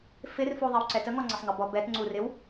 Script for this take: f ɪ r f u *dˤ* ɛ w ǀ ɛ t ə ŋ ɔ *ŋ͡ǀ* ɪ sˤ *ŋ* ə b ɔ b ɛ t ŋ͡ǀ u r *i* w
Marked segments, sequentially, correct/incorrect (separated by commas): incorrect, correct, correct, incorrect